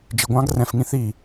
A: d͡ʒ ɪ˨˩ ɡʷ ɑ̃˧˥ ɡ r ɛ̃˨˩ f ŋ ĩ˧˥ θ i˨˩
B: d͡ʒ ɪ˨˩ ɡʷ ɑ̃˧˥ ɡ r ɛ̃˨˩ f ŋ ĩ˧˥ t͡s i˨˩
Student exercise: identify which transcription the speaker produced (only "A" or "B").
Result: A